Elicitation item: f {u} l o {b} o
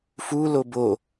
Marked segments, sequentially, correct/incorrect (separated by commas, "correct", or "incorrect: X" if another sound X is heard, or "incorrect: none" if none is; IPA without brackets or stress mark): correct, correct